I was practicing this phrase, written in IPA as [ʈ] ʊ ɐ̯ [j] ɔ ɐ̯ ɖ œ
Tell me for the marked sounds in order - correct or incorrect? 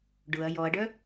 incorrect, correct

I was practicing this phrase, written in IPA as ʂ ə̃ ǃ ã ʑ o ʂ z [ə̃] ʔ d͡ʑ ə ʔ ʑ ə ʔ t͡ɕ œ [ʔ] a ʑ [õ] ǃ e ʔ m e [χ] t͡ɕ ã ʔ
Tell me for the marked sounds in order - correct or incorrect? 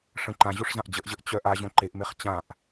incorrect, correct, correct, correct

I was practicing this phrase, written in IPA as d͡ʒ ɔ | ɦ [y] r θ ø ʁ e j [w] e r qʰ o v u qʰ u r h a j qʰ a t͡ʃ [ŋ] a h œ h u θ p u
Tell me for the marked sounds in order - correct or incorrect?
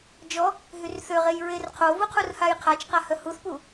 correct, incorrect, incorrect

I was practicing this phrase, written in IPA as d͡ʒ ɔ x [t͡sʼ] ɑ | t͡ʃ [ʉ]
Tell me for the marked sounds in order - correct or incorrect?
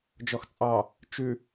correct, correct

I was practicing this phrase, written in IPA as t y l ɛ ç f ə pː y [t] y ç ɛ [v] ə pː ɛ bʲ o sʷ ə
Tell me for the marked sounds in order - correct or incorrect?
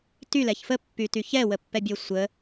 correct, incorrect

